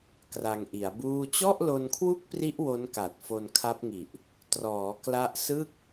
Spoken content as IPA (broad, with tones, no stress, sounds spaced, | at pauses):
k r a˧ ŋ ʔ i˩˦ a̯ b uː˥˩ t͡ɕ ɔ˥˩ ʔ l o˧ n kʰ w u˥˩ k̚ p r i˦˥ ʔ w o˦˥ n k a˨˩ t̚ f o˧ n kʰ a˦˥ p̚ ŋ i˨˩ ʔ | t r ɔː˩˦ k l a˦˥ ʔ s ɯ˥˩ k̚